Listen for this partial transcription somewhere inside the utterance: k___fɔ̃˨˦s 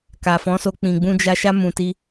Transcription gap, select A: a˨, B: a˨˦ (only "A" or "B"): A